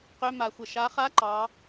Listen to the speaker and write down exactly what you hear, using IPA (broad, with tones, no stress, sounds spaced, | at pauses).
q ø˧˥˧ m a˨˩˦ xʷ ə˩ ʃ a˨˦ χ a˧˥˧ ǃ ɑ˨˦